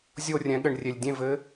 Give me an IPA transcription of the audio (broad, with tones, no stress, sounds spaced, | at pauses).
zʲ o˦˨ rʲ ɛ̃˩˥ ɠ ɘ˨ ɳ rʲ e˨ lʲ dʲ ẽ˦˨ v ɘ˧˥